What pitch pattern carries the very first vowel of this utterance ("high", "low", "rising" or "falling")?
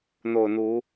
low